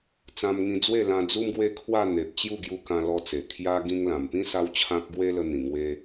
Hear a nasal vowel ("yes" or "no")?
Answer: yes